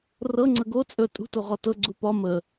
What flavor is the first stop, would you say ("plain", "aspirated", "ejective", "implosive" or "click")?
click